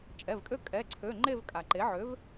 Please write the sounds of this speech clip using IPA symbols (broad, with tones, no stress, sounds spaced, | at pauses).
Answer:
t͡ʃʼ ɛ˩˧˩ v kʼ ø˥˧ kʼ ɛ˩˧˩ ǀʰ ø˩˧˩ ŋ͡ǃ e˥˧ v kʼ a˩ ǃ e˩˥ ʕ ø˩˥ v